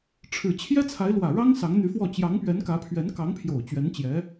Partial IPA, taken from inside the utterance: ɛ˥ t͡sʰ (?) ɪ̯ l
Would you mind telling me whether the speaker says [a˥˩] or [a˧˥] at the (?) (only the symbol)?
a˧˥